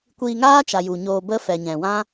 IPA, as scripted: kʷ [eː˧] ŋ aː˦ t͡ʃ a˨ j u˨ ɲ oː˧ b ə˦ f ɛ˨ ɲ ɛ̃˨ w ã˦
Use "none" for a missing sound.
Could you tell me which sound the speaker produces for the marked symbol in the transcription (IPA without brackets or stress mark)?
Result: iː˧